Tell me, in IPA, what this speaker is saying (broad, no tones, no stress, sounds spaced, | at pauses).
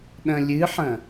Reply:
ɗ ɐ̃ lʲ ɨ ħ ɐ̃